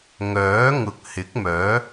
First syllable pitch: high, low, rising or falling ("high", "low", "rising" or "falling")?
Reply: rising